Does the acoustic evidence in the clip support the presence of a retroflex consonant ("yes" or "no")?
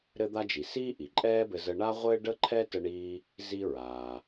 yes